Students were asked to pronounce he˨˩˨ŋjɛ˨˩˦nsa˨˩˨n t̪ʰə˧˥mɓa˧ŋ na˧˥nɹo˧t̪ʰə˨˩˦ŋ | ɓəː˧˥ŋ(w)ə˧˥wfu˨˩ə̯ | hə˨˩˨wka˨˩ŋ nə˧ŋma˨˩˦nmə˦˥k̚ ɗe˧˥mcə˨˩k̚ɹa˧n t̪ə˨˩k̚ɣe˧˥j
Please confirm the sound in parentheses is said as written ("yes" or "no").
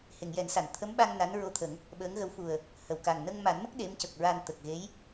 no